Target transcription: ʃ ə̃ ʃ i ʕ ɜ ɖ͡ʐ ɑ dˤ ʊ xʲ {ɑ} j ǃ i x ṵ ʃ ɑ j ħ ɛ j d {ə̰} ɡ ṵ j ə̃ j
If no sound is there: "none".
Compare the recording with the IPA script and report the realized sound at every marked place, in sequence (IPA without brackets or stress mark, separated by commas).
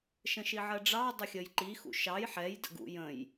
ə, ə̰